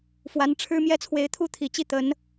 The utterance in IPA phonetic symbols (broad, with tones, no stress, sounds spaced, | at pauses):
f w a˧˥ n ʈ͡ʂʰ ɻ̩˥ m j ɛ˥ t͡sʰ w e˧˥ ɪ̯ t̪ʰ u˥ t̪ʰ i˨˩ t͡ɕ i˥˩ t̪ ə˧˥ n